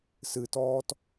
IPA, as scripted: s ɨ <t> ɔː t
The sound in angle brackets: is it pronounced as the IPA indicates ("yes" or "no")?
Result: yes